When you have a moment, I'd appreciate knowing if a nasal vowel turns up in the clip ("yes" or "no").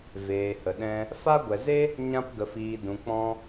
yes